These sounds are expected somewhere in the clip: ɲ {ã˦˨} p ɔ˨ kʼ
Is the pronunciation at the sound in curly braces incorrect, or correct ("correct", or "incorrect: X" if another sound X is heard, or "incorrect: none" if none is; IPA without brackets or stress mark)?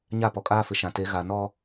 incorrect: a˦˨